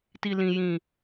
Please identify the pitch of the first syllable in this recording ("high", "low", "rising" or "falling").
low